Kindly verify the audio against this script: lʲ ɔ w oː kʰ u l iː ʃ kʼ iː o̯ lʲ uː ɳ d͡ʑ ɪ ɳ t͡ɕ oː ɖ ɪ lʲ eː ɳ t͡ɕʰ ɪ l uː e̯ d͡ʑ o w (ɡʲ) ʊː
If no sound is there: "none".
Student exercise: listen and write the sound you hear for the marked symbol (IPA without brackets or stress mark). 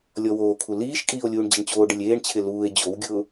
ɡʲ